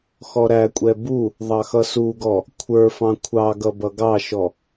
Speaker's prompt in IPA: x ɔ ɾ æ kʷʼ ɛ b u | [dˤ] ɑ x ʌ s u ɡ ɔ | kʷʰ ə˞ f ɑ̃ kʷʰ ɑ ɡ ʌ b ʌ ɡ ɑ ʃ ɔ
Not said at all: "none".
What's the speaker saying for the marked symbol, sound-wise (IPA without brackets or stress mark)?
ðˤ